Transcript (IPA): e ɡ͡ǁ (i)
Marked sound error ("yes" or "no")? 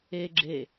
yes